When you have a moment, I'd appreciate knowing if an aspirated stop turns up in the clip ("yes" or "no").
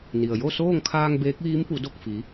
yes